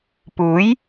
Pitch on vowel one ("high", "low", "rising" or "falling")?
rising